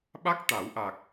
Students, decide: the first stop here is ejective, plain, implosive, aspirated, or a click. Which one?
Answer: implosive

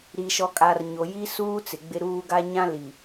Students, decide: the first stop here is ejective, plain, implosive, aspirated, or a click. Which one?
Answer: ejective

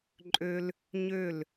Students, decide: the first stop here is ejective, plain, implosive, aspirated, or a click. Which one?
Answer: click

